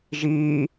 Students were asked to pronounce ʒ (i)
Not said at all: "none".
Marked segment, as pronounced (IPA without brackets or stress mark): iː